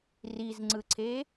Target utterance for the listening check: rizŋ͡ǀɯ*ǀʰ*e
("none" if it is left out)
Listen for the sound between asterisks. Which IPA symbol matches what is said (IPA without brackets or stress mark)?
ǀʰ